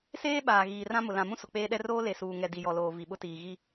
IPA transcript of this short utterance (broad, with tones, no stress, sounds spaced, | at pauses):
s eː˦ ɓ aː˨ ɣ iː˨ r ã˦ m ʊ˨ l ã˨ m ũ˦ s ʊ˨ k͡p eː˦ ɗ ɛ˦ r oː˦ l e˨ s uː˨ ŋ ɛ˨ d i˨ j ɔ˨ l oː˨ v i˨ ɓ ʊ˦ t iː˨ ɣ i˦